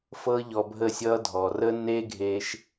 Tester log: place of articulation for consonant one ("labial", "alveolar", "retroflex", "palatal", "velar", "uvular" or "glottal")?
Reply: labial